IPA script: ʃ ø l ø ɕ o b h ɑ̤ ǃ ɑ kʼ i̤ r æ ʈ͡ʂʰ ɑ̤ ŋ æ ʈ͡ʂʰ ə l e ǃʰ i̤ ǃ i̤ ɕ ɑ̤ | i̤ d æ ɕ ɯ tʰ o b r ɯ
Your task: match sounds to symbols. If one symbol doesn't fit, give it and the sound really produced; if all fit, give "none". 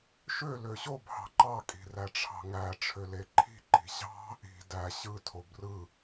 ə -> ø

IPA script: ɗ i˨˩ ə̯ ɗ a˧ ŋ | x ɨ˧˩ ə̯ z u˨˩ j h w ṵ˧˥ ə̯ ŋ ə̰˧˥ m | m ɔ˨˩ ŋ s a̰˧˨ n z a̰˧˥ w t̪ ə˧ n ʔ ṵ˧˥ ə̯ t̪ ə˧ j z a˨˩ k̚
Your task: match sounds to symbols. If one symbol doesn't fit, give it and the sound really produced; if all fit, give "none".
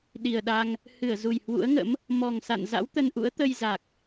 x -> h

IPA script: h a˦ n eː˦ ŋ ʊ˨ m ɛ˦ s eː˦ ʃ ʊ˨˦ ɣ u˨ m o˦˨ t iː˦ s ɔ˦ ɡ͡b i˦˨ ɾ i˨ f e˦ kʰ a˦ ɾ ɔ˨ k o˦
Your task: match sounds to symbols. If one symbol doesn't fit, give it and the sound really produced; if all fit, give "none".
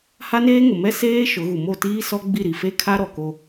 none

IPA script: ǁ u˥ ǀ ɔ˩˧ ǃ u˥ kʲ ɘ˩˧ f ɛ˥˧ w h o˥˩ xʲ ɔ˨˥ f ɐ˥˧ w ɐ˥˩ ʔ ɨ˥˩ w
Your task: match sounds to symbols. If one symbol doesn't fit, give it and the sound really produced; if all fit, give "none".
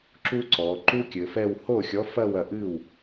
none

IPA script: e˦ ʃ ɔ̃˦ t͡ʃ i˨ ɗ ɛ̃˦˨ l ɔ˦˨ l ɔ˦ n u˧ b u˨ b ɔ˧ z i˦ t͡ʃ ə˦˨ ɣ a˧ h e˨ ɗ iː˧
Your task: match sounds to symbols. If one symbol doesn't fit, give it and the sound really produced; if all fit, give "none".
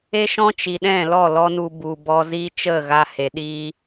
none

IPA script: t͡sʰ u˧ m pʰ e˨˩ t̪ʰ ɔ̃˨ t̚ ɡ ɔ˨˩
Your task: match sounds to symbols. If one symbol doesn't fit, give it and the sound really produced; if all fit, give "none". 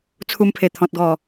none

